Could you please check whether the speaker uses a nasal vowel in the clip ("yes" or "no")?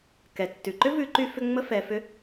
no